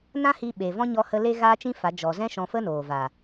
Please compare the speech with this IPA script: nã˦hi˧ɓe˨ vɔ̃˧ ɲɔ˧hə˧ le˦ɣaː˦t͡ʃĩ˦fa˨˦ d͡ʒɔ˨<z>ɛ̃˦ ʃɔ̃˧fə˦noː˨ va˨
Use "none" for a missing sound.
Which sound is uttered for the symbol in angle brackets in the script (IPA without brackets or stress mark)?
z